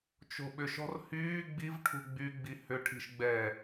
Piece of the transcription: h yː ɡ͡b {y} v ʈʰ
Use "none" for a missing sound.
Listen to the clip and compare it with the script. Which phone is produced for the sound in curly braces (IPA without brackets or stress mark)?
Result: i